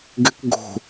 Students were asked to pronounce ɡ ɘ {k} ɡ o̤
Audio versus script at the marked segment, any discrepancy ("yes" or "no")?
no